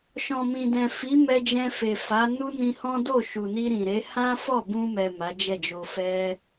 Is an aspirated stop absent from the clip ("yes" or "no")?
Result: yes